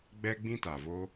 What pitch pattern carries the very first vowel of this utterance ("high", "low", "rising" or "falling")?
high